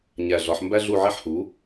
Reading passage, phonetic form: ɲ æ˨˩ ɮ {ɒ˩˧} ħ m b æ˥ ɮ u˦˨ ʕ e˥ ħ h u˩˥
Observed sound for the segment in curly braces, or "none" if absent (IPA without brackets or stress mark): ɒ˩˧